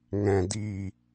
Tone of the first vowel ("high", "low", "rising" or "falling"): low